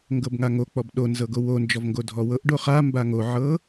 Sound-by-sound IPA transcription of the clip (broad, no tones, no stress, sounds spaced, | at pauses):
ŋ ɡ ɤ b ŋ a ŋ o k͡p ɔ b ɗ o n z ɤ ɡ o w o n d͡ʒ ɔ v ŋ ɡ o dʱ ɔ w ɤ ʔ ɖ o χ a m b a ŋ o ʕ ɤ